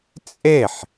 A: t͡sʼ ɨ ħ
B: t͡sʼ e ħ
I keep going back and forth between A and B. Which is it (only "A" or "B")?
B